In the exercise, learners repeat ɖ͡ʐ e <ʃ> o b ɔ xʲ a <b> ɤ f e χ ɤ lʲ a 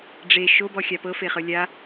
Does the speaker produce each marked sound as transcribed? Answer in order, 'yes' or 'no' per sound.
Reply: yes, no

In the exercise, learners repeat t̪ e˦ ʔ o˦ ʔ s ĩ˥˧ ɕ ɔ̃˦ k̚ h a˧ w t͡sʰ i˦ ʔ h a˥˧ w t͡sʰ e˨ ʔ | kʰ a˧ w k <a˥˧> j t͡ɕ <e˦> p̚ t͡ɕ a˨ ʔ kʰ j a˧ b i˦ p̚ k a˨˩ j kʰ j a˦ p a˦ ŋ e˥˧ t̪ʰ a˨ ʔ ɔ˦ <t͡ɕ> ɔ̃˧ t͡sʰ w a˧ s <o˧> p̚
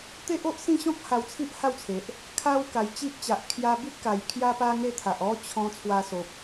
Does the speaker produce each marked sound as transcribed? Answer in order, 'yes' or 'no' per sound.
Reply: no, no, no, no

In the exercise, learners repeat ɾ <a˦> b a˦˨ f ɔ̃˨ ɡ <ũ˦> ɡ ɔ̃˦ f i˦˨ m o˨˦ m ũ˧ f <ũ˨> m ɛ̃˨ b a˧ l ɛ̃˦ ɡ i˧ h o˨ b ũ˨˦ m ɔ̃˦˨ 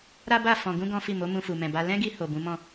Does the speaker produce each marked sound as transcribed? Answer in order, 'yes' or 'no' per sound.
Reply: yes, no, no

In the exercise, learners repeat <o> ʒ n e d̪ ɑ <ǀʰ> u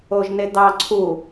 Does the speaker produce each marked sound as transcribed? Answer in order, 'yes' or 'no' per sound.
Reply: yes, yes

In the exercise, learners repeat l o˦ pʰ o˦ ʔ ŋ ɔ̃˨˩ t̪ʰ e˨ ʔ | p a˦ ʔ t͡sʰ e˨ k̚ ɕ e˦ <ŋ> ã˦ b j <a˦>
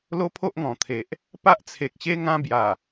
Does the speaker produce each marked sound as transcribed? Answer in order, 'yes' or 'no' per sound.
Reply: yes, no

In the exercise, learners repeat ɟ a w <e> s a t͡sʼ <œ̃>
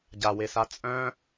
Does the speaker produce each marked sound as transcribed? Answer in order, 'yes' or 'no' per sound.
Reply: yes, yes

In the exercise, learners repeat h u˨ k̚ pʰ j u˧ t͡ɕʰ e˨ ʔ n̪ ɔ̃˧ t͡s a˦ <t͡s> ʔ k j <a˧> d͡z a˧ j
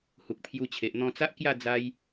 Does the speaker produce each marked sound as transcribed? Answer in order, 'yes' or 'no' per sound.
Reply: no, no

